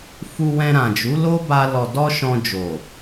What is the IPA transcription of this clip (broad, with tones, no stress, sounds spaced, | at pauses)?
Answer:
f u˧ w ɛ̃˧ ɾ ã˨ d͡ʒ u˨˦ l o˦ b a˧ l ɔ˨ d ɔ˧ ʃ ɔ̃˧ d͡ʒ o˨